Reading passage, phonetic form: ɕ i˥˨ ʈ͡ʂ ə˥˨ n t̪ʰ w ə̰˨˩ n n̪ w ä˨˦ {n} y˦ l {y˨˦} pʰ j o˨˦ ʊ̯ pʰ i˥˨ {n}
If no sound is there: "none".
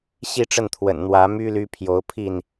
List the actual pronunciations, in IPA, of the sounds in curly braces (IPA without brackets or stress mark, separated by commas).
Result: m, y˦, n